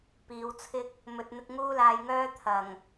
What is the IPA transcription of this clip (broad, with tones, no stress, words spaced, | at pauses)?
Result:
piː˨˧wt͡sʰɪ˥k̚ | mɵ˨t̚n̪ɪ˧k̚ ŋuː˥laː˧jŋœː˥ t̪ʰɐ˨˩ŋ